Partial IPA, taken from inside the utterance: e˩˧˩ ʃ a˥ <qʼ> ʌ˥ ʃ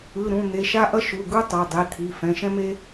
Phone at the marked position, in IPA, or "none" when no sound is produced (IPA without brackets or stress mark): ʔ